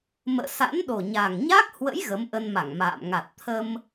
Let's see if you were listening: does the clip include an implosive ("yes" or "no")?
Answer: yes